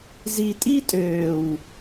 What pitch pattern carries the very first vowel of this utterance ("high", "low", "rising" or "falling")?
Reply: low